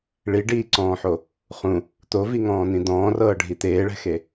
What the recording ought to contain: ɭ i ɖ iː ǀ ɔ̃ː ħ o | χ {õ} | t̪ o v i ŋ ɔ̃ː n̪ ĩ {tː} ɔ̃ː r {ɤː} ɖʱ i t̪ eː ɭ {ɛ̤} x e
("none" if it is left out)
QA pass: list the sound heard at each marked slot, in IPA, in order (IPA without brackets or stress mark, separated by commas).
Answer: ũ, d̪, ɤː, ɛ̤